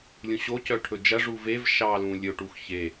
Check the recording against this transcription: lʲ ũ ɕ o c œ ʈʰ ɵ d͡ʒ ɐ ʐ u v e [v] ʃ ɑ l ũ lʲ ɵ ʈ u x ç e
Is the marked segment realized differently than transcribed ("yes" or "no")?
no